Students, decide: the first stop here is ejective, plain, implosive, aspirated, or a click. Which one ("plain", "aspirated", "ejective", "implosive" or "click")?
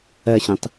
plain